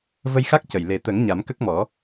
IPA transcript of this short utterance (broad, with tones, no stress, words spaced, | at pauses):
və˧jxa˦˥k̚cə˨˩j le˨˩t̪ə˨˩˦ŋ ɲa˨˩˦mkə˦˥k̚mɔ˨˩˦